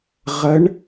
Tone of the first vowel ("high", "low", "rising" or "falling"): rising